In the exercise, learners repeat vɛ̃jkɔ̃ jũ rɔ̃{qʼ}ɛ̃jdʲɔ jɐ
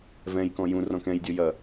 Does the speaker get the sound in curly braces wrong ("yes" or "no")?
yes